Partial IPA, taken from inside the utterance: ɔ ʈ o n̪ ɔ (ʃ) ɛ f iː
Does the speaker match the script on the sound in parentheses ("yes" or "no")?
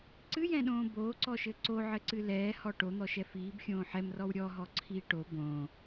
yes